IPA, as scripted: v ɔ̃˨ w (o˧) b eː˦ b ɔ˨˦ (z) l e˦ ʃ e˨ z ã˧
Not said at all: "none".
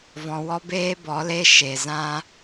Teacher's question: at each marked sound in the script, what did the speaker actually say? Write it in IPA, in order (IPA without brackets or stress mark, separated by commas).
ɔ˧, none